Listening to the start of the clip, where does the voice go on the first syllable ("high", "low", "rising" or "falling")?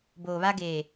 low